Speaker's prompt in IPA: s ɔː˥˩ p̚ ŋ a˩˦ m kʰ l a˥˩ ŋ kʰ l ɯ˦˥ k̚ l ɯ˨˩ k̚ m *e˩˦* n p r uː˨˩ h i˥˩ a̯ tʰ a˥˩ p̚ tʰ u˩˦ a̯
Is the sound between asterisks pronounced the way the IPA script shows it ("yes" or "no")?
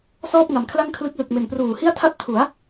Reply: no